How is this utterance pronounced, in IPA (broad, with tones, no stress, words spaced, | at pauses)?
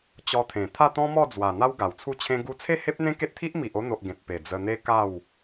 t͡ɕɔ˧t̪ʰẽ˨˩ t̪ʰa˥˧t̪ɔ̃˦ mɔ˥˧d͡zwa˨˩ n̪a˦wɡa˨˩wt͡sʰu˥˧t͡ɕʰẽ˦ ɡu˧t͡sʰe˥˧ he˦p̚n̪ẽ˦ke˦t̚t̪ʰi˦ʔ mi˨ʔo˧n̪o˨ʔ ɡẽ˨t̚pe˨˩ d͡zə˧ n̪e˦ka˥˧w